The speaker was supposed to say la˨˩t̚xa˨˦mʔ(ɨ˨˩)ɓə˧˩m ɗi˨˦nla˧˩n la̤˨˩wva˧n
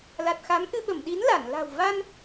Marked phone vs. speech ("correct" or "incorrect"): incorrect